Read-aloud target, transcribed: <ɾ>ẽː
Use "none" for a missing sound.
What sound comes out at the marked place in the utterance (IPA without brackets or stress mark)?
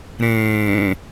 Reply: ɾ